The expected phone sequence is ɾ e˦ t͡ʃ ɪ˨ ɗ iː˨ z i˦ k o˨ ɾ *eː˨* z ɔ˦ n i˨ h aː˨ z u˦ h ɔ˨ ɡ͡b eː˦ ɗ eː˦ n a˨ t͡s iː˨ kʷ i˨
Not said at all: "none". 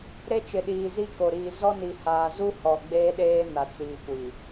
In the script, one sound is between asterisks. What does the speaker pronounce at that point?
iː˨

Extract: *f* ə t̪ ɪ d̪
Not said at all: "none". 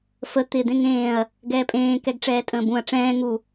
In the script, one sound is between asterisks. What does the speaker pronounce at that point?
f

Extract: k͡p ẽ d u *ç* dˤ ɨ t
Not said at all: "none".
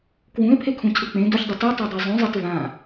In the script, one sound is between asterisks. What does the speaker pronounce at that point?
ç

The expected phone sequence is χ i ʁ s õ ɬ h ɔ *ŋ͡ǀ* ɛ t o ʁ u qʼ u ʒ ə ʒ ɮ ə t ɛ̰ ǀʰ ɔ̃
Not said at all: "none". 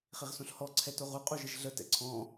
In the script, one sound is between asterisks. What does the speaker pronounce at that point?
ǀʰ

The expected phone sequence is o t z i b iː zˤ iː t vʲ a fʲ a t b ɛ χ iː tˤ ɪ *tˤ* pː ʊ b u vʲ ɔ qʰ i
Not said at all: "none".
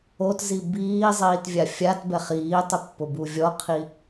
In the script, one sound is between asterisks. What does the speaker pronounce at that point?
none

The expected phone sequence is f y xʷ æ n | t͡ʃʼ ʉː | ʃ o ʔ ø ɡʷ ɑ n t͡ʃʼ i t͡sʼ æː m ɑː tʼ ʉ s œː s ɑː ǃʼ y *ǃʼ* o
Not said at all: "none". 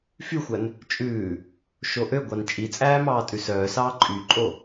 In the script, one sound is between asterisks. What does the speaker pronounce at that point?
ǃʼ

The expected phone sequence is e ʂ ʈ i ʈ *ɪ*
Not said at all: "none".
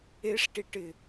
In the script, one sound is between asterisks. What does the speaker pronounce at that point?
ɪ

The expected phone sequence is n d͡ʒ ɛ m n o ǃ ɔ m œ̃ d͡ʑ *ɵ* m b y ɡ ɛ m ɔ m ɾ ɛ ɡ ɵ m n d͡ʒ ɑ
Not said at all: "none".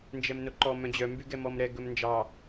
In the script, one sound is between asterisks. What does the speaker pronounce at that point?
œ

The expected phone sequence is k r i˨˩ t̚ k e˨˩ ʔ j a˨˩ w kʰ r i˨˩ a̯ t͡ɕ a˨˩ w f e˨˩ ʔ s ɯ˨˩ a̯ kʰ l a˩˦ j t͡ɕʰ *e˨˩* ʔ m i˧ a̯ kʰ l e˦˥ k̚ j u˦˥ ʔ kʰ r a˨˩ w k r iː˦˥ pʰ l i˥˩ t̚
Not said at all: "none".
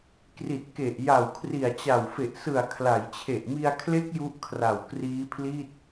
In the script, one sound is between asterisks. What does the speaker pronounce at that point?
e˨˩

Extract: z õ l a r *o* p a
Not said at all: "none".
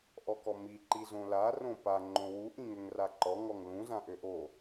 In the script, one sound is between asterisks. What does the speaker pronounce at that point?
õ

